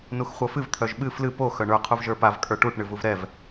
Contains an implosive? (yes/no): yes